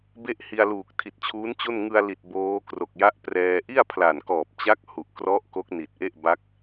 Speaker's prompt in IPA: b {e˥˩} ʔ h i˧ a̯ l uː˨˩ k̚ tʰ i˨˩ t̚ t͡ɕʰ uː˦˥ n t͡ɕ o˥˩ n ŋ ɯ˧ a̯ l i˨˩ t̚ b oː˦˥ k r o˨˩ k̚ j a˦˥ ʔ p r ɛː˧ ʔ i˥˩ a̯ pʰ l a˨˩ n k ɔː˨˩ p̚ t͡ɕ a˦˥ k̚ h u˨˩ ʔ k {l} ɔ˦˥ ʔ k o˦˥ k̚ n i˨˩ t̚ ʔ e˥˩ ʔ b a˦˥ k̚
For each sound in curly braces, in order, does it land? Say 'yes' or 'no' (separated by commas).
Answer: yes, no